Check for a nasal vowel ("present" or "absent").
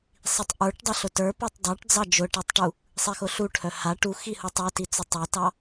absent